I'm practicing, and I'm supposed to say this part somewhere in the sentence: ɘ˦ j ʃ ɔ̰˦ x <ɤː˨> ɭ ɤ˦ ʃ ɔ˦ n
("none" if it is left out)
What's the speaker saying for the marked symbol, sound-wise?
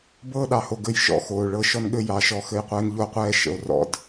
oː˨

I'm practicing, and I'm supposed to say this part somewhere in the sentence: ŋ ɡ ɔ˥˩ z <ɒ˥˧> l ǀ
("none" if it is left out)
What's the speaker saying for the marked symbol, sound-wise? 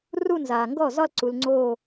ɒ˥˧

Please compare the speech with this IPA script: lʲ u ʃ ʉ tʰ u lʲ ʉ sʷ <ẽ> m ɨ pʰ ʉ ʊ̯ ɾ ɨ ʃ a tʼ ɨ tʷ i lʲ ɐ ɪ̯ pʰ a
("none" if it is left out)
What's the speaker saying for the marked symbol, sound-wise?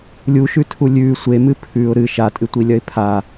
e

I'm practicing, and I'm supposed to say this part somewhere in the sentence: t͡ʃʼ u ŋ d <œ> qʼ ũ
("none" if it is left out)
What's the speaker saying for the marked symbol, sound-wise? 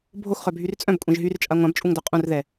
œ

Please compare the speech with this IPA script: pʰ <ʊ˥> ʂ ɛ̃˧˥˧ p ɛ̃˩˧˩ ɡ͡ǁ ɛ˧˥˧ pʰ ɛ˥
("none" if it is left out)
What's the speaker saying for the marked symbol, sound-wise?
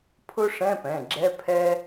ʊ˥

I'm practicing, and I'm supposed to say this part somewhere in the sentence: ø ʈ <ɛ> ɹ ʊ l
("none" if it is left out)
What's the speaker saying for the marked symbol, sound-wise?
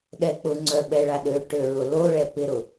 ø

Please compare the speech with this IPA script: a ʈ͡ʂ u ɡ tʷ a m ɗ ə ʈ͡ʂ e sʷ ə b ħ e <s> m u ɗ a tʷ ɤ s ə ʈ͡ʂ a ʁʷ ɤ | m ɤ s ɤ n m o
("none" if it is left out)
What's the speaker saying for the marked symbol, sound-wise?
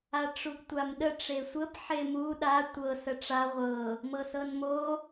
none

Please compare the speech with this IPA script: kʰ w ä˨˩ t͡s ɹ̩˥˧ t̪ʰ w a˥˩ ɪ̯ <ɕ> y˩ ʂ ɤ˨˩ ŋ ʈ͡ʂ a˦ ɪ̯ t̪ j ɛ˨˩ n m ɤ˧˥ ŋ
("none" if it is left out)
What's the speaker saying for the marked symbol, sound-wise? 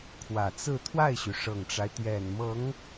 ɕ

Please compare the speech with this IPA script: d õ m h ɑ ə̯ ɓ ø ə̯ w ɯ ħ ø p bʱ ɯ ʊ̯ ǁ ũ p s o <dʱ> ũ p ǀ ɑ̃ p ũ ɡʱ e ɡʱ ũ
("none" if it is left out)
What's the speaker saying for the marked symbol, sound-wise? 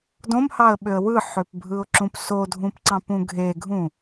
dʱ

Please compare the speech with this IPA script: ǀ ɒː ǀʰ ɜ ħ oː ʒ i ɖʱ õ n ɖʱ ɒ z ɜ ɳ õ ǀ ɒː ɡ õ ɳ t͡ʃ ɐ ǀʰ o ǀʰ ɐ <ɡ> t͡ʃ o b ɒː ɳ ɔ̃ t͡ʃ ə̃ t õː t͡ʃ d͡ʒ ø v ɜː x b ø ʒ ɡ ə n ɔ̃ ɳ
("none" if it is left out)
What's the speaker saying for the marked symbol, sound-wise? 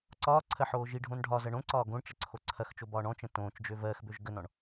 x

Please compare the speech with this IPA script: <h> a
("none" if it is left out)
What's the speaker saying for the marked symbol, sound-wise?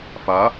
f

